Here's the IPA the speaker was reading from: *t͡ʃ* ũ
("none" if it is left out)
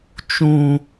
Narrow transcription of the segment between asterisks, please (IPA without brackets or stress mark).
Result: t͡ʃ